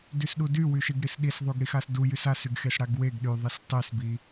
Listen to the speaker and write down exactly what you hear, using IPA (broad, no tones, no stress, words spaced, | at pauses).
dysɗudy wyʃiɡɽisɗis ðˤuɡɽixasdu jysasyɡxes ɽaɡweɡ ɗyðˤis tˤysbi